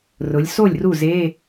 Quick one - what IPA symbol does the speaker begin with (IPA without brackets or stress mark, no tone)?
r